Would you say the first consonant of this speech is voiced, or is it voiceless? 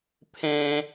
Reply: voiceless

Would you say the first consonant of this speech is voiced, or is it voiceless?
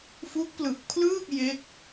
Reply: voiceless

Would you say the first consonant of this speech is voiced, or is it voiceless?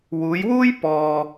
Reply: voiced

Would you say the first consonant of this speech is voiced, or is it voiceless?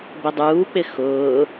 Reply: voiced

